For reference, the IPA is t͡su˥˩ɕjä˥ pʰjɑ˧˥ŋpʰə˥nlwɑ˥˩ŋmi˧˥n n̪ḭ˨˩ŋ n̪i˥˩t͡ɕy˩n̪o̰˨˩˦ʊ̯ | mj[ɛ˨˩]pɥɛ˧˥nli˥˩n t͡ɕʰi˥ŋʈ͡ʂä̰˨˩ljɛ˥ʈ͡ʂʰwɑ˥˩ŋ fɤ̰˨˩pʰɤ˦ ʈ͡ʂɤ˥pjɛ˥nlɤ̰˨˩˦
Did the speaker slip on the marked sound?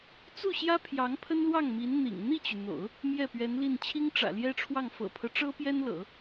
yes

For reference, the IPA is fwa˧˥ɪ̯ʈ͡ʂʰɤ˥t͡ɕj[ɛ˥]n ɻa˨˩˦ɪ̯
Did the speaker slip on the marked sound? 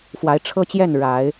yes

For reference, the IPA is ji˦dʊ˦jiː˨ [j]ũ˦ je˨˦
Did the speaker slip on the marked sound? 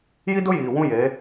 yes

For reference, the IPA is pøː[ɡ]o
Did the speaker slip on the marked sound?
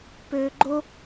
yes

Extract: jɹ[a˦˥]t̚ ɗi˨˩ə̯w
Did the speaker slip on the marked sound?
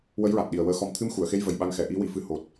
yes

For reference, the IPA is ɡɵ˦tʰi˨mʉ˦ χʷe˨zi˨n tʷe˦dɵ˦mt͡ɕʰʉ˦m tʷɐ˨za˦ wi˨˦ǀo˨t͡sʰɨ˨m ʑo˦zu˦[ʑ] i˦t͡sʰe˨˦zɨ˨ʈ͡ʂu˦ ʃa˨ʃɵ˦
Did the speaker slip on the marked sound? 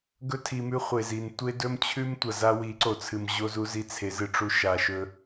yes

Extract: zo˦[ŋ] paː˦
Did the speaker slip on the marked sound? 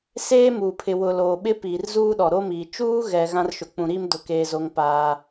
no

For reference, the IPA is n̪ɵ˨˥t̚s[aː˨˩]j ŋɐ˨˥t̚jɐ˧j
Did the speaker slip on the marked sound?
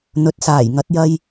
no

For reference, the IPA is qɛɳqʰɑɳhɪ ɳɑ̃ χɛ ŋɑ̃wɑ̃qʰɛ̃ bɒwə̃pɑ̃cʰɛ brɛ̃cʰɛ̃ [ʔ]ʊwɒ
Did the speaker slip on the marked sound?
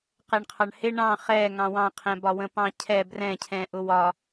no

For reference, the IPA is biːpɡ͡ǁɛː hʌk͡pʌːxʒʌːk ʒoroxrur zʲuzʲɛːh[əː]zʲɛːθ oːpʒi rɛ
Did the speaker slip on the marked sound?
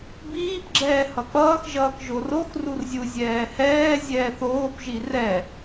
yes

